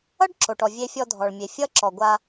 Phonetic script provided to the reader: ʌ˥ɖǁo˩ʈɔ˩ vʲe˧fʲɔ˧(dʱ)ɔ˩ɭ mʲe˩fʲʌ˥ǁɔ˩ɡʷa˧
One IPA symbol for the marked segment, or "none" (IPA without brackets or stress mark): dʱ